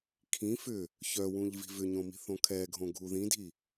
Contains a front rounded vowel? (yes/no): yes